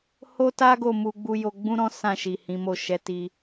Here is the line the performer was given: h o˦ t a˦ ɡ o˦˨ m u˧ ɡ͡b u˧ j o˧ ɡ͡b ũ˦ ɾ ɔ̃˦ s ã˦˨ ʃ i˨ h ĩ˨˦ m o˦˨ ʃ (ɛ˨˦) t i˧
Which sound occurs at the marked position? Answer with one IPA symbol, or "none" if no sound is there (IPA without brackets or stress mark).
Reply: ɛ˨˦